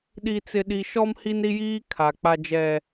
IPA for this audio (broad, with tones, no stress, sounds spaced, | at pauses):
ɗ i˦ t͡s ɪ˦ ɗ i˦ ʃ ɔ˦ m h i˦ n ɾ i˦ j iː˦ kʰ a˨ k͡p a˦ d͡ʒ ɛ˦